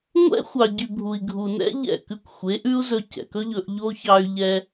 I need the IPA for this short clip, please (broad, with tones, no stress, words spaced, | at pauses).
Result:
ŋʷɛ̰˦xʷɑ˨ɟy˨ bʱu˨i̯ɡʱu˨nɛ̰˦ ʎɛ̰˦˨kʉ˧kʷ xʷe˨˦ʔʉ˦u̯zɵ˧ cɛ̰˨kɵ˦ʎɵ˧ʔʎo˦ çɑ˧y̯ʎɛ˧